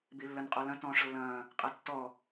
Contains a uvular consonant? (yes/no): yes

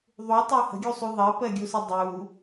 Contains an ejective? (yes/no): no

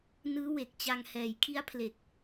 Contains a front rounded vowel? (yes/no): no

